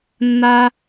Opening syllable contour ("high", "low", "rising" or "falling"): high